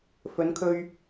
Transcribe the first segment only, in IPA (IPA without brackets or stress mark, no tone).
f